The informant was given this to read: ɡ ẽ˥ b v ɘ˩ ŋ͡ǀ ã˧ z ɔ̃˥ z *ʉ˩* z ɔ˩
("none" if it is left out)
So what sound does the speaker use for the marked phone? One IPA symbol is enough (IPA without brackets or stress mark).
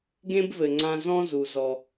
u˩